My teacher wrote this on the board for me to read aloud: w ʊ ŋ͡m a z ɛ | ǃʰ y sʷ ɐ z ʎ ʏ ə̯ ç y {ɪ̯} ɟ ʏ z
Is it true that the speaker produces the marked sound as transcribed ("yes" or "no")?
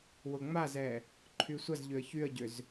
no